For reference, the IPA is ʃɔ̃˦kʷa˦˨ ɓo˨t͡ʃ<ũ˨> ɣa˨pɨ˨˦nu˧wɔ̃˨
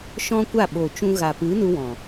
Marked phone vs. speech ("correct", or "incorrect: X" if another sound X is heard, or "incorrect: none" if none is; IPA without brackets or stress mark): incorrect: ũ˧